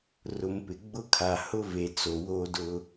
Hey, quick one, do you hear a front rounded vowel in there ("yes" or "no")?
no